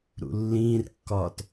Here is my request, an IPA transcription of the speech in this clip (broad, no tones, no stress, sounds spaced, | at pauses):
ɾ ṵ lː ĩː r kː ɒː t